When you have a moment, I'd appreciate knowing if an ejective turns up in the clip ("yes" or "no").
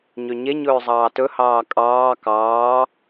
yes